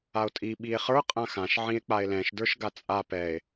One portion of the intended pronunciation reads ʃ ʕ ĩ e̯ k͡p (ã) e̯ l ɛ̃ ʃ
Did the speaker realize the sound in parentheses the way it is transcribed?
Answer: no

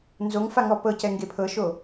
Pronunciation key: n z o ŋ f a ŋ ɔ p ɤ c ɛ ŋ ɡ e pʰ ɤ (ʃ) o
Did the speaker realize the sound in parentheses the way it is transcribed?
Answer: yes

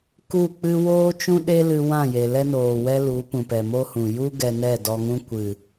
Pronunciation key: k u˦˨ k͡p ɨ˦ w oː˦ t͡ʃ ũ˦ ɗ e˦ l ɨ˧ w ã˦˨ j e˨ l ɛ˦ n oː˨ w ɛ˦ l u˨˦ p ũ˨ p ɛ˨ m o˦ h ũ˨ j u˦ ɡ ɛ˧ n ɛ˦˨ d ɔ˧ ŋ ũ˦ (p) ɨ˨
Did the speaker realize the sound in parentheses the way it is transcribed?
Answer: no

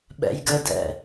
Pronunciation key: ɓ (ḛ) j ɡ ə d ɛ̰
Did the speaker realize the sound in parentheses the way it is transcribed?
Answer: no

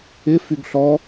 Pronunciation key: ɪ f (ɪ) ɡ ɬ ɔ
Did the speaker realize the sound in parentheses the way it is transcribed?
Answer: no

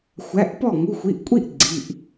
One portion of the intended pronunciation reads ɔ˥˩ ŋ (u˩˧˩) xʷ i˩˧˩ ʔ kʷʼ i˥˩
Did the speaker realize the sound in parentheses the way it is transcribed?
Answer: yes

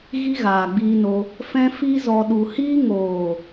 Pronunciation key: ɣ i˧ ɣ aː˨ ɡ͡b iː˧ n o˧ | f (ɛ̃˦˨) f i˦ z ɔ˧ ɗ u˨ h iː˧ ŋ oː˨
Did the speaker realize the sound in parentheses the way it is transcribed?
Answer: no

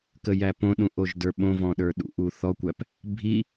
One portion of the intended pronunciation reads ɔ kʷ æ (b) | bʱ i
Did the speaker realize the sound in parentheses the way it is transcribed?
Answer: no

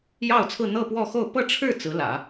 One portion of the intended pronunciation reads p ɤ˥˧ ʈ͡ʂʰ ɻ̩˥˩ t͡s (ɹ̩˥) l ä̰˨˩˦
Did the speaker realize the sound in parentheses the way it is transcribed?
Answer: no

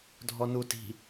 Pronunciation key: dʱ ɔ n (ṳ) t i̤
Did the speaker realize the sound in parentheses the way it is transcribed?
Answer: no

